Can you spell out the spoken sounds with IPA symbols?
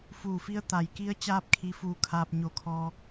f uː˧˩ f i˧˥ ə̯ t̪ a˩ j k i˧˥ ə̯ t͡ɕ aː˧˥ p̚ kʰ i˧ f uː˧ kʰ aː˧ p̚ ɲ o˧˩ kʰ ɔː˧

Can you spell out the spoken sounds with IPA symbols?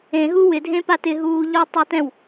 ẽ ɦ u w ɪ dʱ ẽ p a t ɪ ɦ uː ʎ ɔ tˤ u t ɛ̃ w

